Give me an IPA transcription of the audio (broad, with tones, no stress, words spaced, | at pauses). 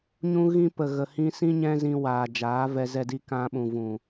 ɲũ˦ɣĩ˦ pə˨ɣə˨ hĩ˧sĩ˦ ɲɛ̃˦zĩ˧ waː˨d͡ʒaː˨˦vɛ˧ zɛ˧di˧kã˧ɓũ˨ vũ˨